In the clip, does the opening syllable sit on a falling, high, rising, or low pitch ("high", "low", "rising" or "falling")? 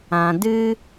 low